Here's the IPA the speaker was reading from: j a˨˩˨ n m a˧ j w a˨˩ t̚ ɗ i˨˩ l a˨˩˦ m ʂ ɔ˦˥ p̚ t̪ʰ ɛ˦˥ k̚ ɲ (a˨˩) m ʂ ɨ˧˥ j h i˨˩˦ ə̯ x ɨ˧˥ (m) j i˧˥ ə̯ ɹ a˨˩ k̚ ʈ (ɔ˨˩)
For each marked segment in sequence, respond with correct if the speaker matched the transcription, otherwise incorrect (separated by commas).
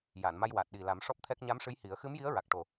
incorrect, correct, incorrect